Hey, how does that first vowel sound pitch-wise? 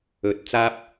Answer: rising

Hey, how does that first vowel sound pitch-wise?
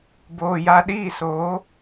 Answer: low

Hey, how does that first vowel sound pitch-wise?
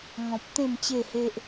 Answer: low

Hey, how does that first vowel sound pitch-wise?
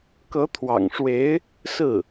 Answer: rising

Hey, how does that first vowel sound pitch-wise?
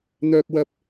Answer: low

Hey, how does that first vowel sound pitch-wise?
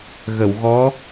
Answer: low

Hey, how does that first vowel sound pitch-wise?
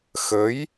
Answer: rising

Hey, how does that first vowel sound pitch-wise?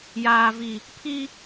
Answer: low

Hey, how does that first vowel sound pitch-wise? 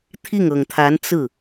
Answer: falling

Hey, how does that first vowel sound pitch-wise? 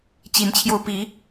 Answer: rising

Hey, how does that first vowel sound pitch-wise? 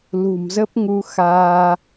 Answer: low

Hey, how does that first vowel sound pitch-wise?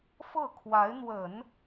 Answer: falling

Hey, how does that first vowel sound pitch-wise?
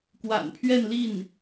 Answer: low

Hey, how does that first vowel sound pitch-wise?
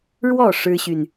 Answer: falling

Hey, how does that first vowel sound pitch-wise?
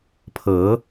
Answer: rising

